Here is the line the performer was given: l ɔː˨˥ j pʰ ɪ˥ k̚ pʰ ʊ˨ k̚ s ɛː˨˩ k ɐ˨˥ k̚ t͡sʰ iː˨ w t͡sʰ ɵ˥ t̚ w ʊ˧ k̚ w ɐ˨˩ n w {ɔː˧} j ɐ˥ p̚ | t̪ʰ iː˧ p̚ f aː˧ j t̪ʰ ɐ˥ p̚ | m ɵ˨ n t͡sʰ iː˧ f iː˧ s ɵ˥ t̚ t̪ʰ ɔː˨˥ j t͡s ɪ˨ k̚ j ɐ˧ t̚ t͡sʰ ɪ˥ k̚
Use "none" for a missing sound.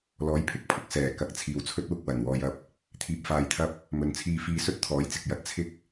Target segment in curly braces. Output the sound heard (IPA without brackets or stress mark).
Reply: ɔː˧